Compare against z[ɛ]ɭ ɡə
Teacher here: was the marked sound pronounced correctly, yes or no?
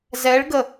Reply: yes